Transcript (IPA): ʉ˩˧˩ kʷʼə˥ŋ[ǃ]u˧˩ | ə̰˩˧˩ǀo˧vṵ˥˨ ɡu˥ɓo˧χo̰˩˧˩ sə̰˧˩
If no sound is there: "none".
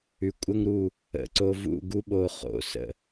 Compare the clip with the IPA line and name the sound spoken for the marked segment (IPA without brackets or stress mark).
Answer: ɾ